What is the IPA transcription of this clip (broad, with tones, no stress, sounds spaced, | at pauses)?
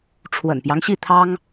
ʈ͡ʂʰ w ə̰˨˩ n p j ɑ˦ ŋ ɕ i˥˩ t̪ʰ ɑ˥ ŋ